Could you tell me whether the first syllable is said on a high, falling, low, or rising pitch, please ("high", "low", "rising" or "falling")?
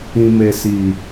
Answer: low